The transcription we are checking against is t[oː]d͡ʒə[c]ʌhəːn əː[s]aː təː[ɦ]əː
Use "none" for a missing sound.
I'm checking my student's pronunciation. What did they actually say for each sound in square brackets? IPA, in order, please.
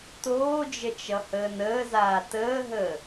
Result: oː, t͡ʃ, z, ɦ

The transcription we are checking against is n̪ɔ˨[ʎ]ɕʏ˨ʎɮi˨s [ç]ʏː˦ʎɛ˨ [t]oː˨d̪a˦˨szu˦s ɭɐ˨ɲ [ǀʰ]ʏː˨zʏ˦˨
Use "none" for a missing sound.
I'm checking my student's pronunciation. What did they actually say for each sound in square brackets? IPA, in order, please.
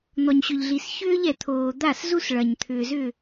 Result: ɲ, ç, t̪ʰ, t̪ʰ

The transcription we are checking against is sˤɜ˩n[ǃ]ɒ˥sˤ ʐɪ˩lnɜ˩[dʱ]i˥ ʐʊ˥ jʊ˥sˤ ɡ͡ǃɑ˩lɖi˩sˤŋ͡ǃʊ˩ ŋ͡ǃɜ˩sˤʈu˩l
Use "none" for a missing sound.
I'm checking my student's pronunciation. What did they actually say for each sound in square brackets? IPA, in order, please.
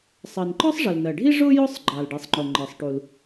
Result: ǃ, ɖʱ

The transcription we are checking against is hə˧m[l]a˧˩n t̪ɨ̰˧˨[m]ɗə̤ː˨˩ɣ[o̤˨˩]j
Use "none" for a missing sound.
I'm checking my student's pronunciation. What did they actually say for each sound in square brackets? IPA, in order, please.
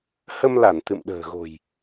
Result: l, m, o̤˨˩

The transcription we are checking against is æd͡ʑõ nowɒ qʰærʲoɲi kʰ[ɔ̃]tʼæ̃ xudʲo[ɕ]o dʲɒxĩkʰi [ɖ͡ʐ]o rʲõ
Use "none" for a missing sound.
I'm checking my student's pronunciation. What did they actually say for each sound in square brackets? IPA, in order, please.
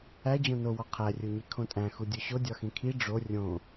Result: õ, ɕ, ɖ͡ʐ

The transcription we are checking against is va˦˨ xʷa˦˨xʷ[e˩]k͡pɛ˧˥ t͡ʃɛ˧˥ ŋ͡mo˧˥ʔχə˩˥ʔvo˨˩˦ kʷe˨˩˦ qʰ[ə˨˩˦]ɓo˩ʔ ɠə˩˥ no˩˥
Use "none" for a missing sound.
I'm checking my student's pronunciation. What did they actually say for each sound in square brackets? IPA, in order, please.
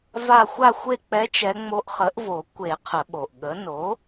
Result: e˦˨, ə˨˩˦

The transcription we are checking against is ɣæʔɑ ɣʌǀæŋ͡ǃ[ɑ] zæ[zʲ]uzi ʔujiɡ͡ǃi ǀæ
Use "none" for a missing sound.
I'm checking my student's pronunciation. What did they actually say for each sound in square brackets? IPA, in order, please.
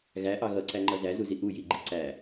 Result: ʌ, z

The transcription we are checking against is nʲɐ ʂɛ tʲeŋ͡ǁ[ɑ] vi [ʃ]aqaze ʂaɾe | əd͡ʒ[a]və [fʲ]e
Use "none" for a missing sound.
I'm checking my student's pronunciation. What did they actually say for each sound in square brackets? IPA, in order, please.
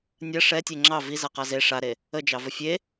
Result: ɑ, z, ɑ, fʲ

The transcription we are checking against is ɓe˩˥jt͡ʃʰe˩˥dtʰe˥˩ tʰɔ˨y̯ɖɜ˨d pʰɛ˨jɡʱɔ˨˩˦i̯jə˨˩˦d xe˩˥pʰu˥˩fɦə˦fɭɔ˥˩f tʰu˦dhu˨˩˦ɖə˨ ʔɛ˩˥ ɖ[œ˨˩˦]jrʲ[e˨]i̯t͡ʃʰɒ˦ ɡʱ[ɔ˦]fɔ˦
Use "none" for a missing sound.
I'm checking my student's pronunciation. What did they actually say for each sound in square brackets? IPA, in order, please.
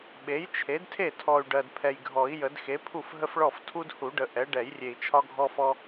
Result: ɛ˨˩˦, e˨, ɔ˦

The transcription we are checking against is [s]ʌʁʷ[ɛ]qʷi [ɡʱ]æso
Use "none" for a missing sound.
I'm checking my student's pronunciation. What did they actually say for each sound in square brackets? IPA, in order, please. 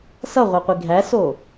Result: s, ɛ, ɡʱ

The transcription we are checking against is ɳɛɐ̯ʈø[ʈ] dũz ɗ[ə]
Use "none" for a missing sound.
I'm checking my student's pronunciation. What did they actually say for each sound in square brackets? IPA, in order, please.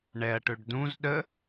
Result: ɖ, ə

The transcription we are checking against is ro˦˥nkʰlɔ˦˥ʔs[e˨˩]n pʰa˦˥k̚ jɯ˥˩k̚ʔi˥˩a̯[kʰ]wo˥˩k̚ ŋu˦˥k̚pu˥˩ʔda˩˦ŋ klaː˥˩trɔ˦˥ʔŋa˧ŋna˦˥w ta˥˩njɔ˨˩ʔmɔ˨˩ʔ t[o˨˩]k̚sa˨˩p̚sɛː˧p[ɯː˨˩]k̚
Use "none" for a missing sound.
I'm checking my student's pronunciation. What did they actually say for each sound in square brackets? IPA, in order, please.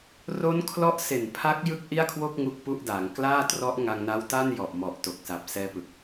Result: e˨˩, kʰ, o˨˩, ɯ˨˩

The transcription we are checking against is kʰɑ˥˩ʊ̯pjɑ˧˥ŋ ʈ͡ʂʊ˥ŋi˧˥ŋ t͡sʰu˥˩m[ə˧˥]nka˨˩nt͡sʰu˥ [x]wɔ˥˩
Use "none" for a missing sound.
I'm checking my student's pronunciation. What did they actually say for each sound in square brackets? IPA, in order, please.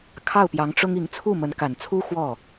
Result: ə˧˥, x

